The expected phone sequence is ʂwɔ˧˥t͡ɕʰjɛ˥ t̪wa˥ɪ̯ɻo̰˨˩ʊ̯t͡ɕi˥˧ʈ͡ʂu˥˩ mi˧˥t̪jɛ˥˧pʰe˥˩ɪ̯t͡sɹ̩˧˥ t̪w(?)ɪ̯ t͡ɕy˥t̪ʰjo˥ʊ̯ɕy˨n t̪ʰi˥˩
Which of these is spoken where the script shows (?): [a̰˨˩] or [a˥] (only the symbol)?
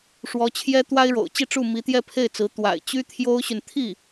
a̰˨˩